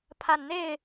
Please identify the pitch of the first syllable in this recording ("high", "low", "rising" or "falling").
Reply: low